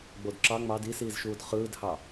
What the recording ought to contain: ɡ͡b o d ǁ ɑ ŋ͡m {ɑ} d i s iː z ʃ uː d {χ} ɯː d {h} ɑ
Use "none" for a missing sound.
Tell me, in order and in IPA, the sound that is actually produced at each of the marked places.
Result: ɑ, χ, h

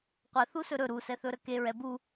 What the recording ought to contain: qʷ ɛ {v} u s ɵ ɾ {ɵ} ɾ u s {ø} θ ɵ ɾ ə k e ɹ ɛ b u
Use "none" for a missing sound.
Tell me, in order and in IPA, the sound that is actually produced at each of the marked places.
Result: θ, ɵ, ɛ

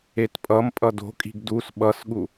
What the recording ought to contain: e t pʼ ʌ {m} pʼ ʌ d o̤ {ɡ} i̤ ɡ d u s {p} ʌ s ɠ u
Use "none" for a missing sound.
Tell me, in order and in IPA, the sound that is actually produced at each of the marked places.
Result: m, kʼ, ɓ

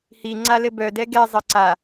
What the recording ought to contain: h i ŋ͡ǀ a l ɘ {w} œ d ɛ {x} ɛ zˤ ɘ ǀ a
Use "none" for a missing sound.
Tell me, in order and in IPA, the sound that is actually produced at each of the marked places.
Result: b, ɡ

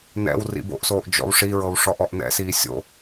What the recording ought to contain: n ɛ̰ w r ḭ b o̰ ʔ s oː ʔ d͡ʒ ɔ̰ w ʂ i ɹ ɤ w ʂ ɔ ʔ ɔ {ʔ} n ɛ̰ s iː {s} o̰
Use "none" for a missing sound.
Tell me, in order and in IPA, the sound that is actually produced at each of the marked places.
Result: ʔ, sʲ

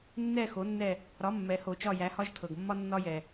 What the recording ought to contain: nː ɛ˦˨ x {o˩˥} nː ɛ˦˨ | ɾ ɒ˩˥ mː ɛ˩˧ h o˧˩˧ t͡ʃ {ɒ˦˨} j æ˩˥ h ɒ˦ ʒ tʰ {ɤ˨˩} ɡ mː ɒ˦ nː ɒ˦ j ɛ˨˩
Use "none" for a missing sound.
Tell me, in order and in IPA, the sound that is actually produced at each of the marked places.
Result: o˩˥, ɒ˦˨, ɤ˨˩

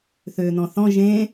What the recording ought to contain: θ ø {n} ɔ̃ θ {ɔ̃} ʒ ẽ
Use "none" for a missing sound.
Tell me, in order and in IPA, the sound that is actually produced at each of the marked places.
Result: n, ɔ̃

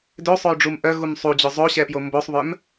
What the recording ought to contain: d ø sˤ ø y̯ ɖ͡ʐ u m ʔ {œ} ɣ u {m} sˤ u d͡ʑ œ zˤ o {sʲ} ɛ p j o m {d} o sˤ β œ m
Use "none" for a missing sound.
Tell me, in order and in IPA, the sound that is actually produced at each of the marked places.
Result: œ, m, ɕ, b

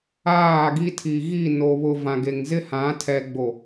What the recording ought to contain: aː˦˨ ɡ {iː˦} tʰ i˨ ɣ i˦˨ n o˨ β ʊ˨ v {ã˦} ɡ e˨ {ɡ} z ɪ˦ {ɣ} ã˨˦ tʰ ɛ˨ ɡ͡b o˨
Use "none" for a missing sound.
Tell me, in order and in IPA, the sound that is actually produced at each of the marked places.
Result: i˦, ã˨, ŋ, h

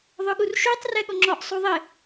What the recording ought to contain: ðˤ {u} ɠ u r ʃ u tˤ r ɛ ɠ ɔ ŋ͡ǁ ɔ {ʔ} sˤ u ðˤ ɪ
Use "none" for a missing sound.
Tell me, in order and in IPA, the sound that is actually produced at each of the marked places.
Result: ʊ, ʔ

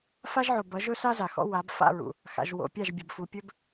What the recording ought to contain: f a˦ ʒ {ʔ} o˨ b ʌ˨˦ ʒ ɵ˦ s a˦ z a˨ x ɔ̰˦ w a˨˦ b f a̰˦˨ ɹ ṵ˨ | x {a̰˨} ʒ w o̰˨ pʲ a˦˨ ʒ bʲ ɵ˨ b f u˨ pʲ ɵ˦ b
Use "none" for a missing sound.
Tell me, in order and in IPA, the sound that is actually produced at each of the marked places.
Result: ʕ, a̰˨

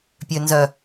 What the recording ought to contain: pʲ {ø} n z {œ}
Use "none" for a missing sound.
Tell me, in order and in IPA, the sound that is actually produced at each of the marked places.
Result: ø, œ

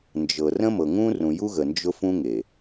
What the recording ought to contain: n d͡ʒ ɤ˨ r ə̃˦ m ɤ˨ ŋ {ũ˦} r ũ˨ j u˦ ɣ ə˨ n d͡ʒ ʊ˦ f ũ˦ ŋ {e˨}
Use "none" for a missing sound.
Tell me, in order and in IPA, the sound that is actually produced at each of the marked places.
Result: ũ˦, e˨

